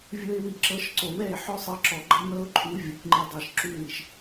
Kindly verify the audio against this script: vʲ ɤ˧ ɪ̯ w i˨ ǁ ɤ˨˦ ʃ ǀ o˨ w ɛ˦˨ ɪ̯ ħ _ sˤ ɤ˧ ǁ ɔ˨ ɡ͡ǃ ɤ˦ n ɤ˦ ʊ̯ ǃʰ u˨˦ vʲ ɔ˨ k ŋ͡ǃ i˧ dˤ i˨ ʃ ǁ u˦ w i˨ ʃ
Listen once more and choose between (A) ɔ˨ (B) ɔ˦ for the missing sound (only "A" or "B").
B